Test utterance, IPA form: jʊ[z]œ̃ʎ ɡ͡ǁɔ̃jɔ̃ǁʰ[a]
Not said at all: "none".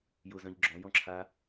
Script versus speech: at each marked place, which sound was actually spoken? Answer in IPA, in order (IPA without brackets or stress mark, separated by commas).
z, a